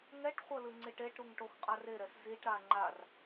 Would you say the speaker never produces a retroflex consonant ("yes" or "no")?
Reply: no